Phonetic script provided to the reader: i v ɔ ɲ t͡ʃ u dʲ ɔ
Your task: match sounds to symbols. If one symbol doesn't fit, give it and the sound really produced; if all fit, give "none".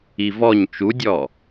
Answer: none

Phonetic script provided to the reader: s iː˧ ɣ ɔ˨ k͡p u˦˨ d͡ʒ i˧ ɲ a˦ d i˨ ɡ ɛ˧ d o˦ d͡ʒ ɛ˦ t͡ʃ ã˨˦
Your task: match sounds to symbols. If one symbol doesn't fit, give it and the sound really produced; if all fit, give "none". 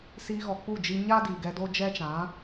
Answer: none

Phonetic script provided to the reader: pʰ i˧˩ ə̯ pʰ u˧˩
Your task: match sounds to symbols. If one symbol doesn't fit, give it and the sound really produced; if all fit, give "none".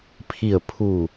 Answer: none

